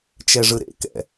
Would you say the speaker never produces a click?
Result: yes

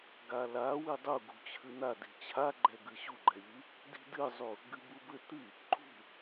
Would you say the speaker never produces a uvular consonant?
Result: yes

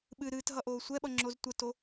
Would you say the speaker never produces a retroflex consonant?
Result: yes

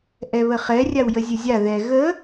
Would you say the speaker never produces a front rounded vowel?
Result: yes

